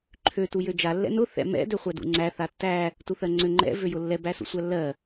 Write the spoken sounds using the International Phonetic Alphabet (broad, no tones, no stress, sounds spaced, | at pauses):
ǃʰ ø t u j ø d͡ʒ a lː ɛ̰ n ʊ θ ɛ̰ m ɛ̰ d ø χʷ æ d ṵ ŋ͡ǀ æ θ a tː æ | t u θ ɜ ŋ͡ǀ ø ŋ͡ǃ ɛ̰ v ø j ʊ lː ɛ b æ s ṵ sʷ æ lː ɜ